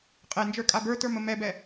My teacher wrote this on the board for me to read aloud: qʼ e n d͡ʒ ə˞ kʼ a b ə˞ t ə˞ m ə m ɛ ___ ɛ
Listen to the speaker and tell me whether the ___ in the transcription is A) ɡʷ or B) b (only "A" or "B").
B